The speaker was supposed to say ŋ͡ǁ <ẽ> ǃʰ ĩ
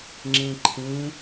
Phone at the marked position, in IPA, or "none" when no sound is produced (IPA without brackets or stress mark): ĩ